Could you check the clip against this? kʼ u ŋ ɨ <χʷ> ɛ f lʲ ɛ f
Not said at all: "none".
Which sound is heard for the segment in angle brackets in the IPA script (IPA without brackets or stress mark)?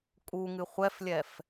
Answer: χʷ